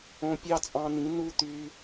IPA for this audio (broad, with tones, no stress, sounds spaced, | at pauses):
õ˧ pʲ ɑ˦ t͡sʼ ɑ̃˧ n ĩ˨˦ n u˦ t̪ y˧